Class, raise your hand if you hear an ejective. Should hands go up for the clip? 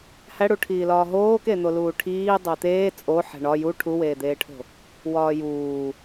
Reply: yes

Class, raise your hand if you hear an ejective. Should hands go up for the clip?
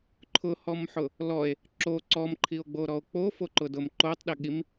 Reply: no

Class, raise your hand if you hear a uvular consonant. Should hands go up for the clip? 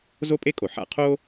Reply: yes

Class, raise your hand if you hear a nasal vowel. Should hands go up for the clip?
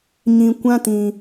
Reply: yes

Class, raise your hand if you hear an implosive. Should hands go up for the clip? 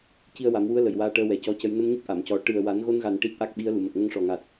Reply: yes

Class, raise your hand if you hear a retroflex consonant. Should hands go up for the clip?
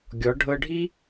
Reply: yes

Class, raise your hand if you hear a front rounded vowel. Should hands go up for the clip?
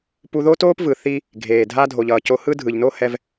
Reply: no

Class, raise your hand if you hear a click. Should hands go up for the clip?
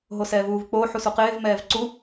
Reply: yes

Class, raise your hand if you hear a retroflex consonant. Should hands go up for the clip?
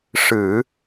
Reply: yes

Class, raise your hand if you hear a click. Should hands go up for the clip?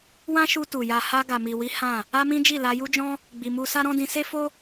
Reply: no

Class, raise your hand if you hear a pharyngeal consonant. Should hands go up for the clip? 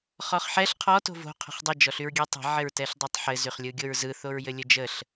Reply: yes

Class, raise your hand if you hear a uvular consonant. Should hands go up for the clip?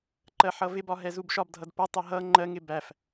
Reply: no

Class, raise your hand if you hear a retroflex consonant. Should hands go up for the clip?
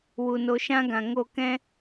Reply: no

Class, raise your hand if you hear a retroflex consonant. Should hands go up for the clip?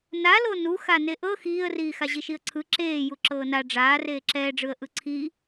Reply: yes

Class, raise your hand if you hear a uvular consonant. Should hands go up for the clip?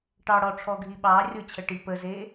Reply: no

